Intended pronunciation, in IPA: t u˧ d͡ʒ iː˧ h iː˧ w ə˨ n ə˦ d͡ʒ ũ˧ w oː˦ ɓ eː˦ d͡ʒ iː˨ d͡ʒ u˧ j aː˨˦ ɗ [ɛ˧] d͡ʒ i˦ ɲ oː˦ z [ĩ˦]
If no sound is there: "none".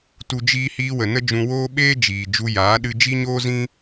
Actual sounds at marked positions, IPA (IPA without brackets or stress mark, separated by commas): ɨ˧, ĩ˦